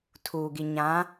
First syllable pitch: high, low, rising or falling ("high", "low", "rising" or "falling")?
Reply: low